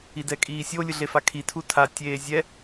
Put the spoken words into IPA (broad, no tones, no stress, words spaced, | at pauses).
idɛkʼiːsʲo lʲɯɮefakʰi tʰutʰa tʲeːzʲɛ